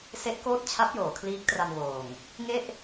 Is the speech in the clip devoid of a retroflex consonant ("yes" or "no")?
yes